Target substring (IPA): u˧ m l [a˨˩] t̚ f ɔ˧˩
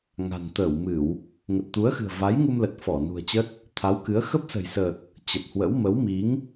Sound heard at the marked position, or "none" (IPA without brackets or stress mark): ə˨˩